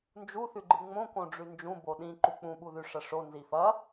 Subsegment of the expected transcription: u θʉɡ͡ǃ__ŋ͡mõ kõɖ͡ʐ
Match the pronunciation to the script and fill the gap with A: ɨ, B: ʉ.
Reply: A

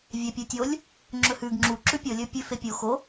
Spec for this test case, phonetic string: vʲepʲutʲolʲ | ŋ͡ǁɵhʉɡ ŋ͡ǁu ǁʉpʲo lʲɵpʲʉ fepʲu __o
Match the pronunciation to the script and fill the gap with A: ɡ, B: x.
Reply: B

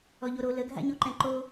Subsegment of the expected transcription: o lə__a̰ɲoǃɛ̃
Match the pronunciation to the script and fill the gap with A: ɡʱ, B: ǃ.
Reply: A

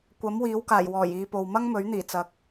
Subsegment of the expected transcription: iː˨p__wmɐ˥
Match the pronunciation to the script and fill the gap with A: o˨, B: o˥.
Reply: A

